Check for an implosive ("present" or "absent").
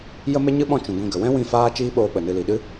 present